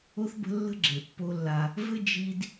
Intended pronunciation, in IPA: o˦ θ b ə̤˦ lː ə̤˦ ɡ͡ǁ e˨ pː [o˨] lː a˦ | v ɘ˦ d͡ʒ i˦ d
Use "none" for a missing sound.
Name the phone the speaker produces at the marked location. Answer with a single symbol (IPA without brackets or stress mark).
o˦